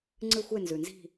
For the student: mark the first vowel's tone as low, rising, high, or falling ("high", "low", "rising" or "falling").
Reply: falling